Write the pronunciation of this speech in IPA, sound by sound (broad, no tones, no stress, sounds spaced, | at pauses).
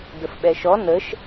d ə f ɓ ɛ ʃ ɔ n ə ʃ